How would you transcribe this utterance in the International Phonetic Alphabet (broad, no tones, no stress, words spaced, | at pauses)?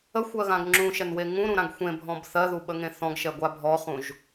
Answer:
əxʷɜɣãɡ ŋ͡ǁũʃɛnwe ŋũɾũɾãɡ xʷẽbʱɔ̃b θɜðuɓəŋẽ θɔ̃ɡʃɛɡʷa bʱɔχũʒ